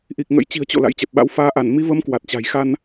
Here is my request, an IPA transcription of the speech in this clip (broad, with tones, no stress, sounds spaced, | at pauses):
ʔ i˨˩ k̚ ŋ ə̰˧˥ j t͡ɕ i̤˨˩ ə̯ t͡ɕ o̰˧˨ l a̰˧˥ j t͡ɕ ɛ˨˩ p̚ ɓ a̰˧˥ w f aː˨˦ ʔ a˧˩ n m i˨˦ v ə˨˦ m k w a˨˩ t̚ t͡ɕ a̤˨˩ j x a˧ n